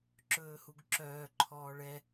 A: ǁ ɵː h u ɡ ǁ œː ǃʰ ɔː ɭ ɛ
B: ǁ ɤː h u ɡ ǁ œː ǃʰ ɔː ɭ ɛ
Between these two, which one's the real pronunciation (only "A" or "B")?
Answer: A